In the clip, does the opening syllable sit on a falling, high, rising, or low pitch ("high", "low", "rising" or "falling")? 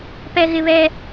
high